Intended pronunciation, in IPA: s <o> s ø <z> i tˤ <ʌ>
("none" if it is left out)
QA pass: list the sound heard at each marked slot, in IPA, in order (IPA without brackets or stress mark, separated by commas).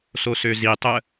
o, z, ə